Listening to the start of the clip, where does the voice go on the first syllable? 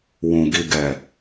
low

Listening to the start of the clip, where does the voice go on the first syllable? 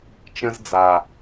high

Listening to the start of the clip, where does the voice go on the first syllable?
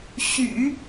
low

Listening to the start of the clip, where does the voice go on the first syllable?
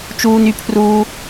high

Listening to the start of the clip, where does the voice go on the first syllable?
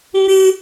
high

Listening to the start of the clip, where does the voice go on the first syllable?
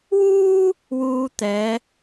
high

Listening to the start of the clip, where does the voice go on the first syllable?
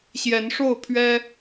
rising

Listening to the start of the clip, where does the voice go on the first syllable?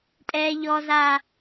low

